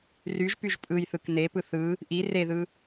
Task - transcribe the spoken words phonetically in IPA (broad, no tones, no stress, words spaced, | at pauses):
ryʒpyʒ pʼɯjθɯk nepɯ θɯ | ʔi reðɯ